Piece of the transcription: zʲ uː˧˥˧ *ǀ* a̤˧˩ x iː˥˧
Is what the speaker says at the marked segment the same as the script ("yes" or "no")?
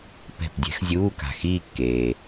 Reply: no